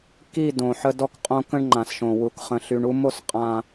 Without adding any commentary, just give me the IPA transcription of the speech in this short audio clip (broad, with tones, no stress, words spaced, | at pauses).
ki˦˨ dõ˨ħə˦ dɔ˦kqʼõ˦ kə̃˦ɳ ŋ͡ǃã˨sʃõ˨wu˨k χə̃˨ɬy˨ɳu˦ mo˦s qʼã˨